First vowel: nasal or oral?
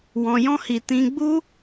nasal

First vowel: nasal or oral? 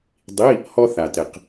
oral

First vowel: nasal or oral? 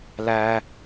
oral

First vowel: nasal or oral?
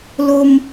oral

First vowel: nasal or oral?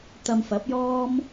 oral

